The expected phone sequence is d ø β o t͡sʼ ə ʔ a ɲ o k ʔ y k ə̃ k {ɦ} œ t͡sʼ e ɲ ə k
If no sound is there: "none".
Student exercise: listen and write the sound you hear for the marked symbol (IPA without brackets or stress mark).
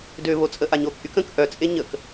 ʔ